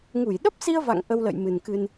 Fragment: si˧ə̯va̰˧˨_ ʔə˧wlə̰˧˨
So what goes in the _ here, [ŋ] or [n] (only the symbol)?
ŋ